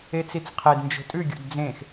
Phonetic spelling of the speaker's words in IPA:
e t͡s i t͡s qʰ e d n d͡ʒ o̤ tʼ ʉ ɡʲ o̰ d d͡z ẽ x

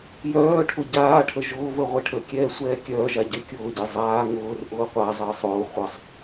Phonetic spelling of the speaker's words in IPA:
j œː ʈʰ ʊ ɟ aː ʈʰ ə ʒ ʊː v ə ʁʷ e ʈʰ ə kʲ ɛː sʷ ɛː kʲ œː ʒ a ɟ e kʲ ʊː ɟ e zˤ aː ŋ ʊː r ʔ ʊː qʷ a zˤ əː sˤ ʊː χʷ ə sˤ

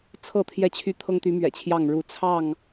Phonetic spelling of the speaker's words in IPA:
t͡sʰ ɤ˥˨ t̪ʰ j ɛ˥˨ t͡ɕʰ y˦ t̪ʰ ɤ˦ ŋ t̪ y˨˦ m ɥ ɛ̰˨˩ t͡ɕʰ j ɑ˥˨ ŋ ɻ u˨˦ t͡sʰ ɑ˥˨ ŋ

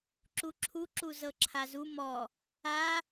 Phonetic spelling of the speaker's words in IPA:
ǁ u ǁʰ u ǁ u z ɤ ǁʰ a z u m ɔ | a

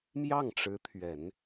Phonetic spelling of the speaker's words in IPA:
m j ɑ˥˩ ŋ ʈ͡ʂ ɻ̩˧˥ t̪ʰ ɥ ɛ˨˩˦ n

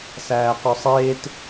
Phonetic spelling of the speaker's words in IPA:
s æː q ɵ sˤ eː t

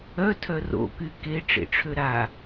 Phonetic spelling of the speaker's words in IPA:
œ tʰ œ r o̰ k y k e ʈ͡ʂ ḛ ʈ͡ʂʰ ø ɾ a

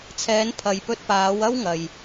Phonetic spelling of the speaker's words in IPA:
t͡sʰ ɛː˨˧ n pʰ ɐ˨ j p ɵ˧ t̚ p aː˨˧ w ɐ˥ w ŋ ɐ˨ j

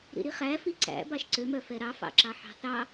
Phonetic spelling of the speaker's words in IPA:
ɾ ḭ ɾ i χ æ f i ǀ æ̰ b ɑ ʃ ǀ ø m œ f ɛ ɾ ɑ f ɑ̰ ǁ ɑ ħ ɑ̤ θ ɑ

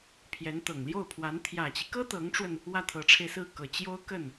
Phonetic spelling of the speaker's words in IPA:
pʰ j ɛ˧˥ n t̪ ɤ˨˩ ŋ l j o˥˩ ʊ̯ pʰ w a˧˥ n t̪ʰ j ä˨˩ t͡ɕ i˦ k ɤ˥ t̪ ɤ˧˥ ŋ ʈ͡ʂ w ə˧ n | w ä˥˩ t̪ʰ ɤ˧˥ ʈ͡ʂʰ e˧ ɪ̯ s ɹ̩˥˩ k ɤ˨˩ t͡ɕ j o˥ ʊ̯ k ə˥˩ n

